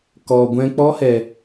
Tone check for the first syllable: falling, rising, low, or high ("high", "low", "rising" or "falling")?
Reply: low